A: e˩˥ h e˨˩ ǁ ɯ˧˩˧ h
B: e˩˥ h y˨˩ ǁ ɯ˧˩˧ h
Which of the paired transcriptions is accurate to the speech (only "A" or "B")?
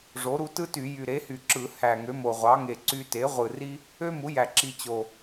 B